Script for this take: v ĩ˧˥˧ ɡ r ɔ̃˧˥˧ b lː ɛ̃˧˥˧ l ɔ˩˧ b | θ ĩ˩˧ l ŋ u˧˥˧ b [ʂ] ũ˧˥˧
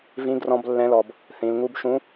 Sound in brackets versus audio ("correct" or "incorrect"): incorrect